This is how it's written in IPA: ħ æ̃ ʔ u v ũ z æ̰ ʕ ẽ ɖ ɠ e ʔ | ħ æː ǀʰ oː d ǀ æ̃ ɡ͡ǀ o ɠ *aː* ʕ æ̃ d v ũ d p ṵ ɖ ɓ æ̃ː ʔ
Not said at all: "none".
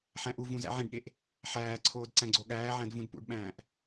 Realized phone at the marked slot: æː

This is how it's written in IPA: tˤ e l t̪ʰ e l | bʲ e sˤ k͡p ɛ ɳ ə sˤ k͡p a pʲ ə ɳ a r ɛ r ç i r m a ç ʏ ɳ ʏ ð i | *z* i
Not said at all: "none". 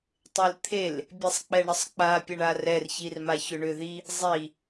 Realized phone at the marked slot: zˤ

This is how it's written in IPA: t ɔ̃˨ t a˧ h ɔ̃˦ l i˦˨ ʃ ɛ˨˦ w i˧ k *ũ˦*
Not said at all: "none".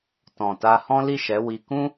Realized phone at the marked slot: ũ˦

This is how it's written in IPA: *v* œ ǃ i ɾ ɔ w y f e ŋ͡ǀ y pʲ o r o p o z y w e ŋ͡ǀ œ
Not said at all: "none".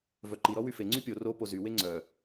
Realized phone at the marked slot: v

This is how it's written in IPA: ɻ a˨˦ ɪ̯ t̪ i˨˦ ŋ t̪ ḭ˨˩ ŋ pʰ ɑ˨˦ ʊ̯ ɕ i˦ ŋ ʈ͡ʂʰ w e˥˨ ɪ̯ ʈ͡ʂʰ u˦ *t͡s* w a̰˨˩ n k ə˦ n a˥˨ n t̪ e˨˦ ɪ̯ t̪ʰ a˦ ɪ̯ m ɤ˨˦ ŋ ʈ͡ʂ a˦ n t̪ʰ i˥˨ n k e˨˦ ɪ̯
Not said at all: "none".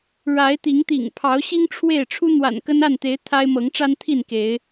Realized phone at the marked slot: n̪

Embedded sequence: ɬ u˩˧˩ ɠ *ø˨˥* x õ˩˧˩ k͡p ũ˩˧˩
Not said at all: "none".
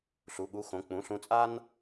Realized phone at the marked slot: u˨˥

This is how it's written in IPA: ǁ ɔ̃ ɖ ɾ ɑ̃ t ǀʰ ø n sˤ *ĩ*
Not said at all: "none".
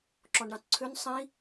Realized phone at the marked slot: ĩ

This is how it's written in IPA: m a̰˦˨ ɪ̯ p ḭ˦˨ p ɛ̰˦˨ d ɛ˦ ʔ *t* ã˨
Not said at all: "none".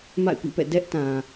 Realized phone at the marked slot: t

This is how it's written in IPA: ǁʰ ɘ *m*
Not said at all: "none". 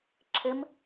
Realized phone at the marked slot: m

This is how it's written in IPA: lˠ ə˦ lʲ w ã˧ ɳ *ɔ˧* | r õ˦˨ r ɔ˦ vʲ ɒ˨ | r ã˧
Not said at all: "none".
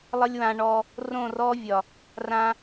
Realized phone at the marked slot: ɔ˧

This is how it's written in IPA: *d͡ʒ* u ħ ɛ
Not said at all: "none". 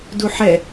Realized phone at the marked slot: d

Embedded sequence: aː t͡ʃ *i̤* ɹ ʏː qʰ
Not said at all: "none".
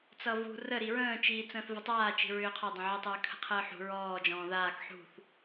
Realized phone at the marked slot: i̤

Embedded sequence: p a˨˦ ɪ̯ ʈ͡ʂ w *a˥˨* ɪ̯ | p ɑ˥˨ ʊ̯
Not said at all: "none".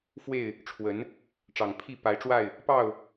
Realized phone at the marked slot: a˥˨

